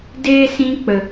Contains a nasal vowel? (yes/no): yes